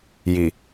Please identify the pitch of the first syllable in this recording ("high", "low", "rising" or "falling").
low